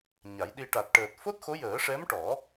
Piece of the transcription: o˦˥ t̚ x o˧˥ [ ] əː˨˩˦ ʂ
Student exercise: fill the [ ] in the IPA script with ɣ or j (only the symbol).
j